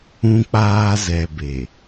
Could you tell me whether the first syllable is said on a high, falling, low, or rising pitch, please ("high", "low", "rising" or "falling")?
high